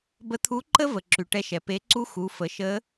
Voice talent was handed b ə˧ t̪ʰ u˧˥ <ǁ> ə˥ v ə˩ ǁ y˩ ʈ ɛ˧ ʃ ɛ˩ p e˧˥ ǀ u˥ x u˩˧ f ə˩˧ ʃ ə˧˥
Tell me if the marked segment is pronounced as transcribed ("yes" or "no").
no